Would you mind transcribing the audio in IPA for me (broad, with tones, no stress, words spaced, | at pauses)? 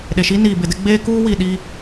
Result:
ɗe˨ʃiː˦niː˨ bɪ˨dɪ˦ ɡ͡beː˦kuː˦ wi˨ɗi˦